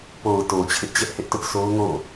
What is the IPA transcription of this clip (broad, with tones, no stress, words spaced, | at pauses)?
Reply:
po˨ʊ̯to˨ t͡ɕʰɪ˦ʔt͡ɕɛ˦ʔhɪ˦ʔtʊ˦ʔ so˦ʊ̯ŋo̰˦˨